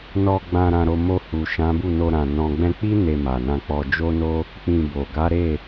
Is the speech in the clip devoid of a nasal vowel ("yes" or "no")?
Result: no